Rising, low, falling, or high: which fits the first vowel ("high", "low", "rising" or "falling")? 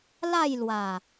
falling